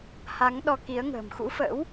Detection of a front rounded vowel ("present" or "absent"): absent